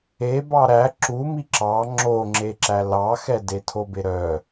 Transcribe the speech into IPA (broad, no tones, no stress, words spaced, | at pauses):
e bɑɾæ ǁumi ǁɑ ŋ͡ǁoŋ͡ǁeǁæ lɑxɛde tʰobeɾœ